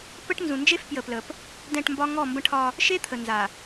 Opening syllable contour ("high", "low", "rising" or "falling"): high